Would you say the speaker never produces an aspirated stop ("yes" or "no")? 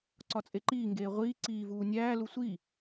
yes